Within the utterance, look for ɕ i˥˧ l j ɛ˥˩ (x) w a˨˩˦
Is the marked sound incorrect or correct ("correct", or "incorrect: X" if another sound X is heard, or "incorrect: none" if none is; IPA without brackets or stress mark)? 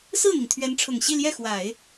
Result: correct